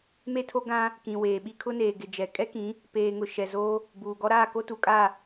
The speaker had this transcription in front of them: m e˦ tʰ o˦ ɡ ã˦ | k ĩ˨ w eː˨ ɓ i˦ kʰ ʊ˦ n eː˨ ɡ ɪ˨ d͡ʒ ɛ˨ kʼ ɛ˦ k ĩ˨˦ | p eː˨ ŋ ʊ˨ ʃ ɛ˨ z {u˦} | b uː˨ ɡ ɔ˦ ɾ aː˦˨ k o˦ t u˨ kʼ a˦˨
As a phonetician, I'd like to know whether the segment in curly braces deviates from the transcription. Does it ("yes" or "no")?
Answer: yes